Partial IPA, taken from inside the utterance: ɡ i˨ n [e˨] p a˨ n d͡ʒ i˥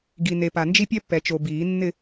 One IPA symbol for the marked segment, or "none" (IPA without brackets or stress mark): e˨